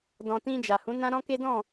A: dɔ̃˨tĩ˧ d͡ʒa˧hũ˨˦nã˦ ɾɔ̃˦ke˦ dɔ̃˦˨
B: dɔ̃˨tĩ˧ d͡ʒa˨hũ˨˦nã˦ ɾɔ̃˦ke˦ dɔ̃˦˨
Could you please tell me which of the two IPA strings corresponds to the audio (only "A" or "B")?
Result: B